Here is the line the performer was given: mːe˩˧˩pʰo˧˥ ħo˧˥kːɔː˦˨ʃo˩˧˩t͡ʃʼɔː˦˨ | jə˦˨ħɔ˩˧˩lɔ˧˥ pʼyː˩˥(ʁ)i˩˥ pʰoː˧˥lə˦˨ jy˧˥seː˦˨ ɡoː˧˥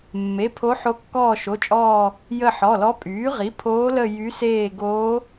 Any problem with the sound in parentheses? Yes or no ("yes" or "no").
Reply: no